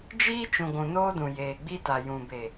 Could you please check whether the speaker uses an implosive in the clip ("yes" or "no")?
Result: no